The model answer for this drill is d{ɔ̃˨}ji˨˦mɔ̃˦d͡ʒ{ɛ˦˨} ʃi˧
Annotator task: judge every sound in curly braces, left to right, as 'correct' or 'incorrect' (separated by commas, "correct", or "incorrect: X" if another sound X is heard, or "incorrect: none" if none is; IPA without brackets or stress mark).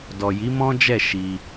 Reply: incorrect: ɔ˨, correct